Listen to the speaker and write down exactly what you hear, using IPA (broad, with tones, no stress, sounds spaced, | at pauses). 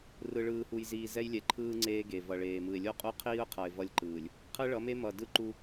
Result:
r ɯ˨ ɭ ɯː˨ h u˨ j z iː˨ z ɛ˦ j lʲ ɛ˨ ǃʰ ɯː˦ ŋ͡ǀ eː˦ ɡ e˨ v ʌ˨ ɭ eː˨ m ɯ˨ ɪ̯ lʲ o˦ qʼ u˦ qʰ iː˦ ʊ̯ qʰ ʌ˨ ɪ̯ v ʌ˦ lʲ ǃ ɯː˨ lʲ | qʰ ɯ˦ ɭ ʌ˨˦ m e˦ m ʌ˨ d ɯ˦ ǃ u˦